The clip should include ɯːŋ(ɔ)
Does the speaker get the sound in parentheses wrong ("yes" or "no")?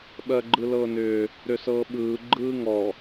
no